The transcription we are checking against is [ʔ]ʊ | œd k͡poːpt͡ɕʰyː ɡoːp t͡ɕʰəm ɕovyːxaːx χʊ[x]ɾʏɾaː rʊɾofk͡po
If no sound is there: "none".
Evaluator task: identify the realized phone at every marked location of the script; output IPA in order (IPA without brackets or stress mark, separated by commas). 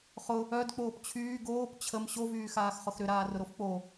χ, x